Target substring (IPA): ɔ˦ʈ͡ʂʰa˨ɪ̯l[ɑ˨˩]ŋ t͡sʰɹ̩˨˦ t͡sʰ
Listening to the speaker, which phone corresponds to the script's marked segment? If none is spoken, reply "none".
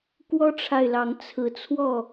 ɑ˨˦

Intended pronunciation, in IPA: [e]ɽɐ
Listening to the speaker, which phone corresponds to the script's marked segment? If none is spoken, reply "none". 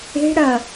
e̤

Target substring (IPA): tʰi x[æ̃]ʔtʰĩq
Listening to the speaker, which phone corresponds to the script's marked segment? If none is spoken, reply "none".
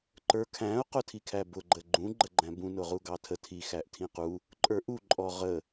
æ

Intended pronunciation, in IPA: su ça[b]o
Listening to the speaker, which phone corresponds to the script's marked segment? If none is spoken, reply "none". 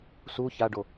ɖ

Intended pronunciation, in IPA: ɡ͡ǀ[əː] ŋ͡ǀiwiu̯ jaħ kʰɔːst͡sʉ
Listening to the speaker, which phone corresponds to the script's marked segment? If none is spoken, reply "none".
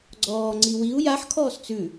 ɔː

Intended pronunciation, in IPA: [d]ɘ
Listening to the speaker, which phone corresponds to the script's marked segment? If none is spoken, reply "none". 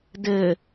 d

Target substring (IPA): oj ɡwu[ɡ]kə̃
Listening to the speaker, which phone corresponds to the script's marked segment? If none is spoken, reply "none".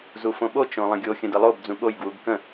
ɡ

